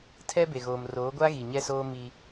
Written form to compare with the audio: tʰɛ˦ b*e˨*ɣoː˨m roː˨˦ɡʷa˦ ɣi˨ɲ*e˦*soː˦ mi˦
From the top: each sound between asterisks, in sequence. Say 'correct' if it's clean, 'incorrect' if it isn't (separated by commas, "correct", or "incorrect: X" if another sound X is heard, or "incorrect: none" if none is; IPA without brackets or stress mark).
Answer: correct, incorrect: ɛ˦